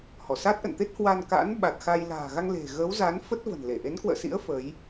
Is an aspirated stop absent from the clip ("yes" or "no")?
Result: yes